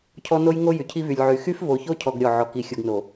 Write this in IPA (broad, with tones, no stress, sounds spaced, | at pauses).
cʰ ɔ˦ n o˦ j ŋ o˦ j y˨ cʰ i˦ v y˨ lʲ ʕ y˨ x y˦ f v o˨ ç o˦ cʰ ɔ˨ ɡ ɾʲ ɔ˦˨ ʕ ɔ˨ k i˨ xʲ u˨ ɡ n o˨